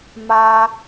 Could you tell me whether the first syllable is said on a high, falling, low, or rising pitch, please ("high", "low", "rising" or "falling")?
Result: low